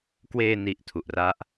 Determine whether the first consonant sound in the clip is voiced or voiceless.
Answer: voiceless